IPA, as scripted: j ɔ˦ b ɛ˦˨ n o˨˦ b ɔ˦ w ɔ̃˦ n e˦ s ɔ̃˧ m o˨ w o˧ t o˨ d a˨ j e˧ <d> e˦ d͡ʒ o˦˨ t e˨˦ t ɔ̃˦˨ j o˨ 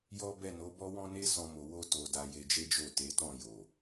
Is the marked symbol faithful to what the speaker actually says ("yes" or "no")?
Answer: no